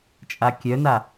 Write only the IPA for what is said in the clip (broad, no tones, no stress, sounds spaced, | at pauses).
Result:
t͡ʃʼ a kʲ œ n a